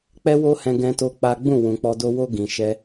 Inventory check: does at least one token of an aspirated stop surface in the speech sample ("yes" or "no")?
no